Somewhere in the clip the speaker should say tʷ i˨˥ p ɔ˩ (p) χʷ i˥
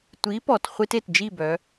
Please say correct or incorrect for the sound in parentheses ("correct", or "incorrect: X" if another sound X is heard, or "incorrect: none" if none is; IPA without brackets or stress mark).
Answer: incorrect: t